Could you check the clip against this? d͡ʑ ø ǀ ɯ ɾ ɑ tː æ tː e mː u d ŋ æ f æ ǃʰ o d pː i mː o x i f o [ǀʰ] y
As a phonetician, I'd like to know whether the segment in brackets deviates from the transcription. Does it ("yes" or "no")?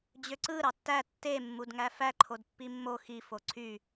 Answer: no